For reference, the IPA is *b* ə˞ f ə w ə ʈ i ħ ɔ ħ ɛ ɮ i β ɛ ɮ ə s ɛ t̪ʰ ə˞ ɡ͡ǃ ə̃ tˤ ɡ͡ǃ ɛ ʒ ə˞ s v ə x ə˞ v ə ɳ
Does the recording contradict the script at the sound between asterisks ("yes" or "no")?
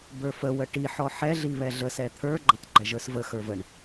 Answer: no